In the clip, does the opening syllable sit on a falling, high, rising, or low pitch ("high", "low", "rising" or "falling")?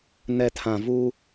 low